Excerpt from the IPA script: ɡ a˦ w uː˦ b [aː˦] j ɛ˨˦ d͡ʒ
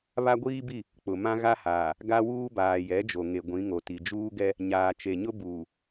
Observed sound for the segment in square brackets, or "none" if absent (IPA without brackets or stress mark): aː˨